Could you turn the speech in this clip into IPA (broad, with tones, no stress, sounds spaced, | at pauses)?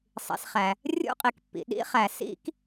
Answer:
sˤ ḭ˩ s χ æ˩ | rʲ ṵ˥ qʼ i˩ k pː ḭ˩ ɗ ḭ˥ χ æ˩ s ḭ˥ k